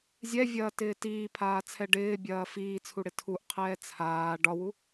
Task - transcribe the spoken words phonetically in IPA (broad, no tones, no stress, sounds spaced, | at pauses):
zʲ ɛ vʲ ɐː t ɪː t iː pʰ aː t͡sʰ ɛ ɖ ɪː bʲ ɐː f iː t͡sʰ u ɽ ɪ tʰ u ʔ qʰ ɛː t͡sʰ aː ɖ ɒ w u